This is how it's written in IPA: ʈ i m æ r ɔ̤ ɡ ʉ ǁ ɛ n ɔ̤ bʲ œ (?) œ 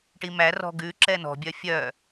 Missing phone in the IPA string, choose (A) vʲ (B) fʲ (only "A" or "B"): B